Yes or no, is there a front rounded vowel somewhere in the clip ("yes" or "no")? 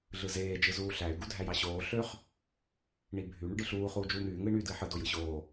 yes